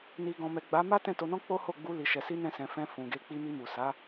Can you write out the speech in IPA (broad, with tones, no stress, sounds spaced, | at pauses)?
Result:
n i˨ ɡ ɔ̃˨ m ɛ˨ ɡ͡b a˨˦ m a˦ t ɛ̃˦˨ t o˧ n ɔ̃˦ k͡p o˦ h o˦˨ ɡ͡b u˧ l i˨ ʃ ɛ˨ s i˧ n ɛ̃˧ s ɛ̃˨ f ɛ̃˧ f ũ˨ ɡ e˨˦ k͡p i˧ m i˧ m u˨ s a˨˦